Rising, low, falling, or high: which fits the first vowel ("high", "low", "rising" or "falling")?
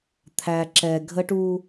low